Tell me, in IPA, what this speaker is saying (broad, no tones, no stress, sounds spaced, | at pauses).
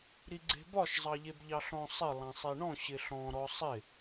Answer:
ɾ i ɡ͡ǀ e̤ b ɒ ʃ zˤ ɑ ʎ e b ʎ ɑ ɬ ɔ̃ sˤ ɪ lˠ ɑ̃ sˤ e ɳ ɔ̃ ɕ ɪ ɬ ɔ̃ ɾ ɔ sˤ ɪ